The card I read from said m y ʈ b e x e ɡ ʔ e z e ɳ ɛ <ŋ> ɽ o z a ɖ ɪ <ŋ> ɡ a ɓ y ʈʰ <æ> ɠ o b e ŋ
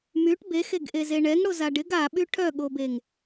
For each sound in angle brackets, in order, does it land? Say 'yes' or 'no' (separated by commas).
yes, no, no